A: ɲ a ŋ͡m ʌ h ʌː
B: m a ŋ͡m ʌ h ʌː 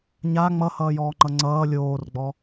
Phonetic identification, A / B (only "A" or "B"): A